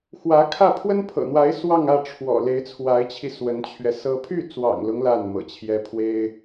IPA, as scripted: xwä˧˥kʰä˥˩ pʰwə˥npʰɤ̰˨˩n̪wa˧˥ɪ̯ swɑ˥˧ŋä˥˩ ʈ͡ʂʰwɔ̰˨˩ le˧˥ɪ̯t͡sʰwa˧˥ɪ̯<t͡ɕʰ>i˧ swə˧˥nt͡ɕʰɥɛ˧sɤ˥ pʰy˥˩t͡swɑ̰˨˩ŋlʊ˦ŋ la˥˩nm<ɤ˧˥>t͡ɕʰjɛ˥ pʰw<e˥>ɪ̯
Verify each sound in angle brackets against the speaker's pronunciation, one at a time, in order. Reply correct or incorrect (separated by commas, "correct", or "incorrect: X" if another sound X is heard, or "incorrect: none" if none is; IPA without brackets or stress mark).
correct, incorrect: ɤ̰˨˩, correct